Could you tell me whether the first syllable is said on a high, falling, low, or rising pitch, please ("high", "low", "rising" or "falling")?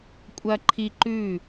high